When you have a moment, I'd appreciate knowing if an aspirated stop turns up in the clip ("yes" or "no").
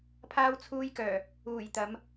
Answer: yes